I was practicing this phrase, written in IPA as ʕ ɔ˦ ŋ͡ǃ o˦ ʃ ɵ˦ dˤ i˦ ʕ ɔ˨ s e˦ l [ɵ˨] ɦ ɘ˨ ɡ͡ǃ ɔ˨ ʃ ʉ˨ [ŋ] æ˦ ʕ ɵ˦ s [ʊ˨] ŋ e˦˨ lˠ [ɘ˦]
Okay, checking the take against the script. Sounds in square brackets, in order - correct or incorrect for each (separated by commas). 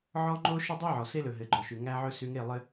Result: correct, correct, incorrect, correct